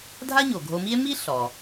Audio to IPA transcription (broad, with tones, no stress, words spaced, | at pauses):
dʱa˥ɲo˩ɡʱo˧mi˥e̯ mi˥ ɬɔ˩